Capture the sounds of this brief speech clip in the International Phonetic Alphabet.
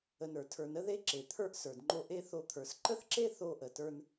ə˨ n ə˞˩ tʰ ə˞˨ n ə˥ ð e˦ ǁ e˩ t̪ʰ ə˞˦ ʔ s ə˞˩ d ŋ͡ǃ o˦ ʔ e˥ θ o˦ t̪ʰ ə˞˨ s ǃ ə˥ θ ǁ e˥ θ o˦ ʔ ə˩ t ə˞˦ n

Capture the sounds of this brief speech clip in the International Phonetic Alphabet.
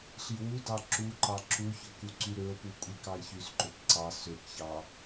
ɬ i w u d ɑ ǁ u ǃ ɑ ǁ u ç ɵ k u ǀ y ɾ ø o̯ p u kʷʼ i k ɑ e̯ ç y s ǃ ɵ p ǀ ɑ s ø k ç ɑ

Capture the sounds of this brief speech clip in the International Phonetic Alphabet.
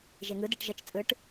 ʒ e ŋ ɯ d e ʈ ʒ ə t͡ʃ t͡sʼ ɯ ʈ

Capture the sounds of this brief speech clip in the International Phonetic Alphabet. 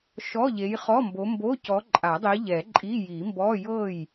ʃ ɔ˧˥˧ ʎ e˨˦ j χ ɔ˧˥˧ m b o˨˦ m b o˧˥˧ c ɔ˨˦ ǃʼ a˨˩˦ dˤ i˨˦ ʎ ɛ˨˩˦ ǃʼ i˧˥˧ j i˨˩˦ m b ɔ˧˥˧ j ɤ˥˩ j

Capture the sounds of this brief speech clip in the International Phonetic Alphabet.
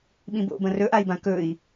ɓ ĩ b o̰ b ɐ̃ r ɵ ʔ a i̯ b ã k ɵ i̯

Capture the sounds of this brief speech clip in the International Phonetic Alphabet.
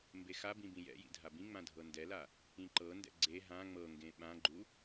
m b e x a b ĩ b ĩ j ɛ̰ j ḭ dʱ a b ĩ ŋ͡m ã dʱ ɤ n d ɛ l a | ĩ ǃ ɤ n d ɛ̰ ɡ͡ǀ e ɦ ã ŋ͡m ɤ ŋ ɡ ẽ ɓ ã ɡ͡ǃ u

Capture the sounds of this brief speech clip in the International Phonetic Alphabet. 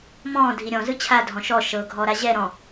m ɔ̃ː dʱ i ɾʲ ɔ̃ z ɯ t͡ɕʰ a dʱ ɔ̃ ʃ ɔ ʃ ɤ ɡʱ ɔ ɾ a ʑ ɛ ɾ ɔ̃

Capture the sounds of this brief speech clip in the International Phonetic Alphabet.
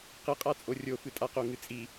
q ɨ qʼ a t͡sʼ o rʲ o f ɨ tʼ a q o ŋ ɨ t͡sʼ i

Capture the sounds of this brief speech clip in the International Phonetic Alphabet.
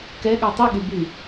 k ɛ ɠ a tˤ i ɠ y b y

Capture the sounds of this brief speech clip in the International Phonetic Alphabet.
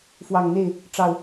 f w ɑ˨˩ ŋ n̪ e˥˨ ɪ̯ | ʈ͡ʂ ɑ˨˩ ʊ̯

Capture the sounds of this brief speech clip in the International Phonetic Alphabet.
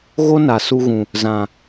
ɣ o˦ n a˨ s u˧ ɣ ũ˨ | z ã˨

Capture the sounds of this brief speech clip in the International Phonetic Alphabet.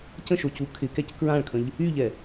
c ə̃ ʃ o c u kʰ ɪ k ɛ c k ɹ ã ɭ kʰ ə̃ ʎ | y ʎ ɛ

